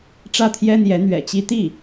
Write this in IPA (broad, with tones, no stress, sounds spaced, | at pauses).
ʈ͡ʂ ä˥˩ t̪ʰ j ɛ˥ n̪ j ɛ˧˥ n̪ ɥ ɛ̰˨˩ t͡ɕ i˥ t̪ i˥˩